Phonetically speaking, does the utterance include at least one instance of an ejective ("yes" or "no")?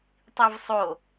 no